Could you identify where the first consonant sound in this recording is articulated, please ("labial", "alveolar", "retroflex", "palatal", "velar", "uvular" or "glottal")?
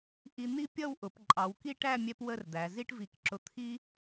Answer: glottal